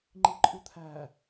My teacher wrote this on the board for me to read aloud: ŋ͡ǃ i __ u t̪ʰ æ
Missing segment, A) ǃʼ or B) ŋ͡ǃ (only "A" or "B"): A